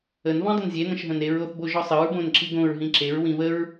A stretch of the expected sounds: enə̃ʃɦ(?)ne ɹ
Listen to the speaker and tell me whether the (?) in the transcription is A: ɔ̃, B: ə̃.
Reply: B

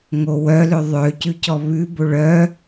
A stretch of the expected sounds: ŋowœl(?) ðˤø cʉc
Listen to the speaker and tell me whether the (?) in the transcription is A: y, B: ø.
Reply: B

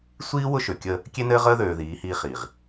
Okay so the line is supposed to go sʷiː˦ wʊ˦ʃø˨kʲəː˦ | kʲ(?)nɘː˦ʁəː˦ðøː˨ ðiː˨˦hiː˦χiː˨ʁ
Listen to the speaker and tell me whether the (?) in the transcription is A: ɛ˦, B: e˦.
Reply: B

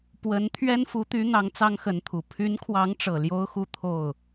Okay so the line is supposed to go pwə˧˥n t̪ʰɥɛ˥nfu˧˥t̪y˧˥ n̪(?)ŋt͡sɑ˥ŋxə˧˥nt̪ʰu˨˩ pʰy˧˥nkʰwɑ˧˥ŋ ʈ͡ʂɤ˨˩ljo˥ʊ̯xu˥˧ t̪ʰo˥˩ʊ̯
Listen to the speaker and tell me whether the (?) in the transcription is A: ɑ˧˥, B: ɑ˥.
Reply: A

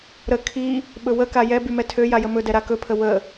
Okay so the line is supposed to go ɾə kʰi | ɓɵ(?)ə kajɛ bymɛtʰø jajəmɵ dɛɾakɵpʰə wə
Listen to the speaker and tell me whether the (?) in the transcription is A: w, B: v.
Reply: A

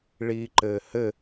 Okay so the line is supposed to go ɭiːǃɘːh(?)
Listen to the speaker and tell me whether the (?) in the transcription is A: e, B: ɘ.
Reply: B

